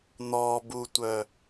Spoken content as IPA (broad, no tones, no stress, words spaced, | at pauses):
n̪ɔbutʷœ